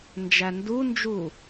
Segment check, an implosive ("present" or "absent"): absent